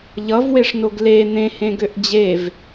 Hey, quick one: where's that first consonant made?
palate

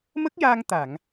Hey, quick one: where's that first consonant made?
lips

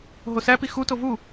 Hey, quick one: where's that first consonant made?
throat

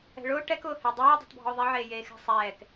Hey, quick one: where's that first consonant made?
retroflex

